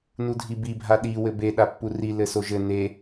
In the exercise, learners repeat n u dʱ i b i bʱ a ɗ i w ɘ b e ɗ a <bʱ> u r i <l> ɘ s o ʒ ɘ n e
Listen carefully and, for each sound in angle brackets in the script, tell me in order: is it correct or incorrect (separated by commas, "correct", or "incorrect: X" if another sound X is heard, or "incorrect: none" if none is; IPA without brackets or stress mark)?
incorrect: pː, correct